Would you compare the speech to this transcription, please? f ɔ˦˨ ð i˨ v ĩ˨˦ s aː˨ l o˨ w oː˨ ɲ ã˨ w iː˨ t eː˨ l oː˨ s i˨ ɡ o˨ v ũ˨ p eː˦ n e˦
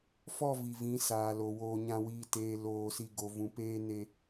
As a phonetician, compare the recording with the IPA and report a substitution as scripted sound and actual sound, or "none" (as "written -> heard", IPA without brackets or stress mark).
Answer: ð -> v